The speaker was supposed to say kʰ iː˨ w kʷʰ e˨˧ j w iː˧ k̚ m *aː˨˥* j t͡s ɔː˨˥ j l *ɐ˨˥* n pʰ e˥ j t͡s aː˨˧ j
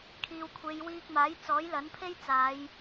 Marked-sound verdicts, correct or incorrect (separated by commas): correct, correct